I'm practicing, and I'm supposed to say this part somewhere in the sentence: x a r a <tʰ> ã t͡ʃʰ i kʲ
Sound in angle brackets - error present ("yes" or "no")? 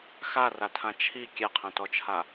no